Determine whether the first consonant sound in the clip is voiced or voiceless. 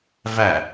voiced